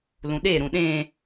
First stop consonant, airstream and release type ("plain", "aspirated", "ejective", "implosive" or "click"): implosive